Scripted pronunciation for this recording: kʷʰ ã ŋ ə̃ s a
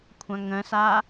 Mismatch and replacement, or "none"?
none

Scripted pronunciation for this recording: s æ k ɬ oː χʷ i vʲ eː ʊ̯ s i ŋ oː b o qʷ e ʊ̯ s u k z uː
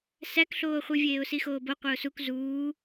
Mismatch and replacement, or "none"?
ŋ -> x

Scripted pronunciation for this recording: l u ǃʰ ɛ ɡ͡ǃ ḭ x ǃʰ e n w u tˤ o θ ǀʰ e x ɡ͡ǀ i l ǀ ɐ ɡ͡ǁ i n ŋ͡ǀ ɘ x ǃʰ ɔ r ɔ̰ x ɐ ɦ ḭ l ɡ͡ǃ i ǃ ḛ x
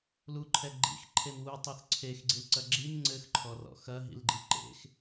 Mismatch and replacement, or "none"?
none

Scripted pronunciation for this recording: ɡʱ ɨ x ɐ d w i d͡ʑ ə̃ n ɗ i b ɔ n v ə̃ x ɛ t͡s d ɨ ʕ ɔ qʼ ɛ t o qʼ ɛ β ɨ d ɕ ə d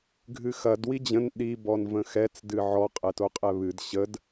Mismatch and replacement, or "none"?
none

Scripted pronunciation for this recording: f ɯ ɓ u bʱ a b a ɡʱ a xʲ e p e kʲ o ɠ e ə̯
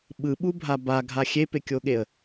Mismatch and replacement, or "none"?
f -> ɓ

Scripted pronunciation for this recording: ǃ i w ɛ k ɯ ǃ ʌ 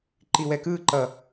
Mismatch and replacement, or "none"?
none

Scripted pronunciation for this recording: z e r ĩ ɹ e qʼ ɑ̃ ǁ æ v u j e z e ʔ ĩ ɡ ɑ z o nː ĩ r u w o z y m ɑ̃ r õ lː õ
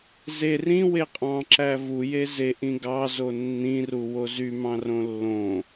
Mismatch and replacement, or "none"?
ɹ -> w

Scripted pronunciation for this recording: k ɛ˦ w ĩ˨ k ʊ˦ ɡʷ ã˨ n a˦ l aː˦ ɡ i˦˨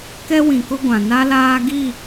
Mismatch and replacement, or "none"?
none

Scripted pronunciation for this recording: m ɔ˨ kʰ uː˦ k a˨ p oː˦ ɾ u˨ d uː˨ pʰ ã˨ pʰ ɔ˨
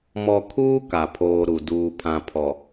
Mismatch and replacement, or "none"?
p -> pʰ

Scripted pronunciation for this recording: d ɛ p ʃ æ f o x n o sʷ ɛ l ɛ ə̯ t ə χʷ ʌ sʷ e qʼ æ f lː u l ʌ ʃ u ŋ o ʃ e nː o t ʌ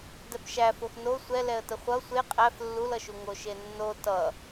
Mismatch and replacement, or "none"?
none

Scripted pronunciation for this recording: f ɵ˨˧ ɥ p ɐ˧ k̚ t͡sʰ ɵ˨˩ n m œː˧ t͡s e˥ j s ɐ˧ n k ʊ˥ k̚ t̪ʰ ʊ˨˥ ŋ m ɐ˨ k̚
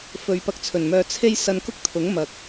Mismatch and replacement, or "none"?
t͡s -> t͡sʰ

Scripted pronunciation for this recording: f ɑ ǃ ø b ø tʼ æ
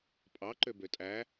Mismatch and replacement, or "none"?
f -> pʼ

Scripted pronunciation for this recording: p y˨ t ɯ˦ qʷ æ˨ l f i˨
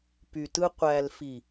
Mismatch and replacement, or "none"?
none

